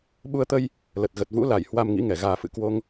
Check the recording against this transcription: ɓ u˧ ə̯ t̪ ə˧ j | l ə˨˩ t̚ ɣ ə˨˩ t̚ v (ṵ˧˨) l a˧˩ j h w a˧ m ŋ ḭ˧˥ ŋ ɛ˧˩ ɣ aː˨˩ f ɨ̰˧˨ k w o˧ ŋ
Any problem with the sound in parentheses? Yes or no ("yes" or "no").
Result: yes